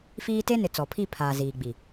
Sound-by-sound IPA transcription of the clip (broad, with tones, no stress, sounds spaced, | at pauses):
f iː˦ t e˦ n ɪ˨ t͡s ɔ˨ pʰ i˦˨ pʰ aː˨ z iː˨ ɡ͡b i˨